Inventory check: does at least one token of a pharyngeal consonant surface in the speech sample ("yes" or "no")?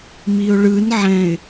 yes